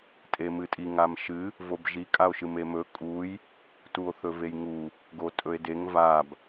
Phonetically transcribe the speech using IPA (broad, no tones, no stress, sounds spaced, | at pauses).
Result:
tʼ e m ɨ tʼ i ŋ a m ʃ ɨ | v o b ʒ i kʼ a o̯ ʃ ɨ m e m ɵ kʼ u j | t u o̯ θ ɵ v e j ŋ u | ɡ o tʼ ɵ e̯ d e ŋ v a b